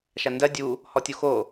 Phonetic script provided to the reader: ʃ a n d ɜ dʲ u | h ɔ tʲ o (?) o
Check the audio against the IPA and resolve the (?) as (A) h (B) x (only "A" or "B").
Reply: B